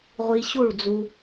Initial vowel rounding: unrounded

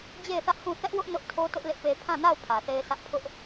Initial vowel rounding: unrounded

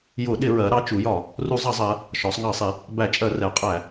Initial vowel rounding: rounded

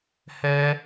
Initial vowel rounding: unrounded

